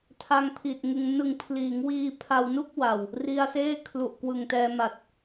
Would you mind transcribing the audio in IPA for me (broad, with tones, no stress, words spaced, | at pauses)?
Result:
tʰa˧ŋpʰi˨˩t̚ŋɯ˧ŋ nɯ˨˩ŋpʰliː˩˦ŋ wiː˧pʰa˧wnu˥˩k̚wa˨˩w | ri˧a̯seː˥˩ kʰlu˨˩ʔkwɯ˨˩ŋtɛː˧ma˨˩t̚